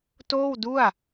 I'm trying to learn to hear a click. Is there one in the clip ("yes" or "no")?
no